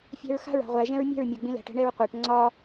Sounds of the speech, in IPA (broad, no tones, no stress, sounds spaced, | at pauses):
fʲ æ̤ ɹ x a̤ ɹ a̤ ʁʷ æ ʒ ɛ̃ ɹ mʲ ɛ̤ ɹ mʲ a ɡ͡b ĩ l æ̤ ʈ ɛ̤ ɳ ɛ ɹ qʷ æ ʈ ŋ͡ǀ ɒ